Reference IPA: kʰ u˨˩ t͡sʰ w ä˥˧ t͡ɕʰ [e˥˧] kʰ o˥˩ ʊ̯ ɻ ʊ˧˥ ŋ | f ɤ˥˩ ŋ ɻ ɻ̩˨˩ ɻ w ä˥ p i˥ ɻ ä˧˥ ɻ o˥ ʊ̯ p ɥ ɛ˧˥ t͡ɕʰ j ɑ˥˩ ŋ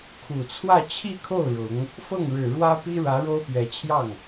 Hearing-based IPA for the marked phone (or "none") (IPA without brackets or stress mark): i˥˧